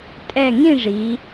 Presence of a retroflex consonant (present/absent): present